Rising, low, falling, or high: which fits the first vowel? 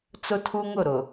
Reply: high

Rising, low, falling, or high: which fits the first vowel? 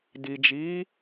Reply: low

